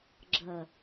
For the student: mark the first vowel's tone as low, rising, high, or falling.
low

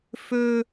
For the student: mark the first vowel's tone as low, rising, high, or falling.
high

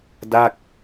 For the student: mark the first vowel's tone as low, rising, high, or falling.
falling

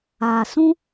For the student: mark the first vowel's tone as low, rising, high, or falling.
low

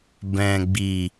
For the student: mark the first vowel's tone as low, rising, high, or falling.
low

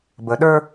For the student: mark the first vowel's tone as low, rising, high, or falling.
rising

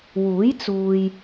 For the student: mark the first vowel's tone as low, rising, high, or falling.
rising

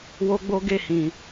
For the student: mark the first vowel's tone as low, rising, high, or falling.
high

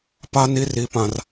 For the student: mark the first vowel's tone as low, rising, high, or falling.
high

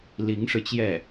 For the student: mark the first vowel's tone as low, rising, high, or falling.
rising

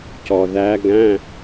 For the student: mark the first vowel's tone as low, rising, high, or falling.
low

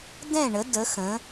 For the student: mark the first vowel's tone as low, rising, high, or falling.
falling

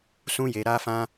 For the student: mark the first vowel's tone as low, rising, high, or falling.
high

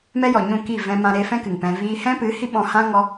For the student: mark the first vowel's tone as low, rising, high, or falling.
high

